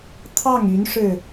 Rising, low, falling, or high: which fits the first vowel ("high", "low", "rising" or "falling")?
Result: falling